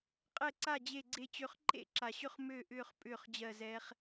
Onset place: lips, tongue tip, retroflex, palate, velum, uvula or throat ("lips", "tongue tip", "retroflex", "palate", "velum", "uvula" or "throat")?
uvula